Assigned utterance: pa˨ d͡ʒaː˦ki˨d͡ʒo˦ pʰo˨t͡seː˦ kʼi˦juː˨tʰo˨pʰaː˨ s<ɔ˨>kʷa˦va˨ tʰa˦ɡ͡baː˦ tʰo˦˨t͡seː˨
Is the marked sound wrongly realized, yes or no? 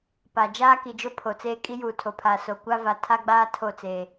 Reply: yes